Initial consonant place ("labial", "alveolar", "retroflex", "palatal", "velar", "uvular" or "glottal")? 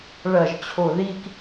retroflex